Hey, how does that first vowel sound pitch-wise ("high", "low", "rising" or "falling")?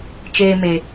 high